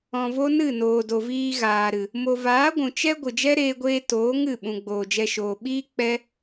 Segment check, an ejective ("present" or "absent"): absent